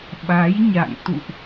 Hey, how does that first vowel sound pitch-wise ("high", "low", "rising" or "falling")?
rising